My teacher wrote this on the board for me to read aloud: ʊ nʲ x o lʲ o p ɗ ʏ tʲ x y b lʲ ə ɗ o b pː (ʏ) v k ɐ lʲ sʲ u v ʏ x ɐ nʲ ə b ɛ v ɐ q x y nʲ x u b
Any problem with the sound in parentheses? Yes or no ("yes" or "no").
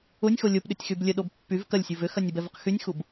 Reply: yes